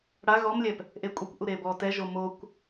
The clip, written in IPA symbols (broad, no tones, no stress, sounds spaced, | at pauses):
ɽ a ɣ ɔ m lʲ ɛ p | ʔ e kʷʼ ɛ kʷ ʔ u ɾ e b ɔ t ɛ ʒ o m o kʷ